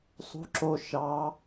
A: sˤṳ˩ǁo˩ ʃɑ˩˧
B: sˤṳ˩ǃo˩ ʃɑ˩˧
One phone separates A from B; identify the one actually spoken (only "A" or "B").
A